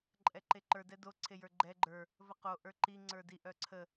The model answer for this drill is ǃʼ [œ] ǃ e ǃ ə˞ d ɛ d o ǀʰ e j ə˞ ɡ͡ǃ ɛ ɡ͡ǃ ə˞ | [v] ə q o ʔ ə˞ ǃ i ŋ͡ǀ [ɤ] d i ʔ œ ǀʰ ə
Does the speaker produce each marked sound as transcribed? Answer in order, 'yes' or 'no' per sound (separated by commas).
no, yes, no